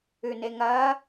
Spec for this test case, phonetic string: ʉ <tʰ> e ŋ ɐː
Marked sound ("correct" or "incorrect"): incorrect